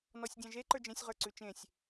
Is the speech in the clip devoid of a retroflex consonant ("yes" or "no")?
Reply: yes